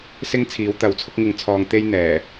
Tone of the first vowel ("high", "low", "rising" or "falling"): high